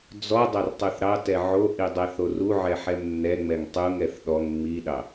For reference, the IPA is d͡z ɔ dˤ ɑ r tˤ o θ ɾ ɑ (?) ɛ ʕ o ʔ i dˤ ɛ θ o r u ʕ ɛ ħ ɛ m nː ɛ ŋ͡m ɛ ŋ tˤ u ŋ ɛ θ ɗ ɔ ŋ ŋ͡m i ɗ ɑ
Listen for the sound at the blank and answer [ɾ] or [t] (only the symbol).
t